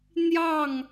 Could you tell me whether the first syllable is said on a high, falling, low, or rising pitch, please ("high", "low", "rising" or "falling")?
falling